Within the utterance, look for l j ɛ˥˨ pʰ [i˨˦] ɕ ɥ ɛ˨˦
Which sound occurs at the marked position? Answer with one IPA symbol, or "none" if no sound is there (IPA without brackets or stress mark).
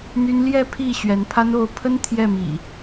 i˥˨